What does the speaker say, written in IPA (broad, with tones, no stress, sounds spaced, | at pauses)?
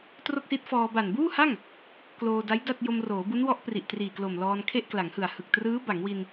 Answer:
t r o˥˩ k̚ s i˦˥ t̚ f ɔː˧ b a˨˩ n b uː˥˩ h a˥˩ ŋ | k l oː˧ d a˦˥ j d a˥˩ t̚ j o˧ m r oː˩˦ b u˦˥ n w ɔ˦˥ ʔ p r i˨˩ ʔ t r iː˨˩ k l o˨˩ m l ɔː˧ n kʰ e˥˩ ʔ k l a˩˦ ŋ h ɯ˨˩ a̯ h ɯ˨˩ k̚ t r ɯː˦˥ b a˩˦ ŋ w i˧ n